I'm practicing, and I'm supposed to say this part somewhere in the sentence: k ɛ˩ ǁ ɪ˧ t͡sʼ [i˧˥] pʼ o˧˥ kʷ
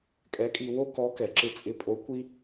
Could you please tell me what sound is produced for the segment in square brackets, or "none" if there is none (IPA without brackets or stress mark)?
ɪ˧˥